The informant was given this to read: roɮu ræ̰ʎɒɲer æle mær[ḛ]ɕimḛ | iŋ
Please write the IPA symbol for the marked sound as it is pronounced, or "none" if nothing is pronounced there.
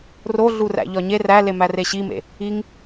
e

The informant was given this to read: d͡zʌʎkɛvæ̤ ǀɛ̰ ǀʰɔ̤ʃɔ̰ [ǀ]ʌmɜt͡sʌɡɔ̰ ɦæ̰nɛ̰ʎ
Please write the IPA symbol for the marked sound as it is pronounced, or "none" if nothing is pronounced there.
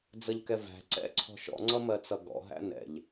ŋ͡ǀ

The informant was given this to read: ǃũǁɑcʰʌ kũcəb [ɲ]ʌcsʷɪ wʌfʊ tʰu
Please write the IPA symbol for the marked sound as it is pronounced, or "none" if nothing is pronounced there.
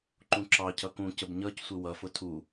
ɲ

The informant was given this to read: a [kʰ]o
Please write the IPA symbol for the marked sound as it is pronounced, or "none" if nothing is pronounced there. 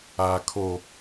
kʰ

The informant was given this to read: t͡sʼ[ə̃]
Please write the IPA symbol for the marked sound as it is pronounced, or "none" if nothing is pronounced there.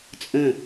ə̃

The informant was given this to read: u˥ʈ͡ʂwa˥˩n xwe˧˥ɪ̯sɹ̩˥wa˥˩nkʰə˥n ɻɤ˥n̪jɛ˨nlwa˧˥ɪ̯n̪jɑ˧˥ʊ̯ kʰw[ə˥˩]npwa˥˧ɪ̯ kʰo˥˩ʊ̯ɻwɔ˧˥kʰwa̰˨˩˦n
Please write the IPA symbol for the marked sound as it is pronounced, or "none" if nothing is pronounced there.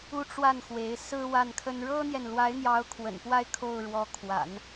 ə̰˨˩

